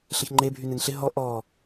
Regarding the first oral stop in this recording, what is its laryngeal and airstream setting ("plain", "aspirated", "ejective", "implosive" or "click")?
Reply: click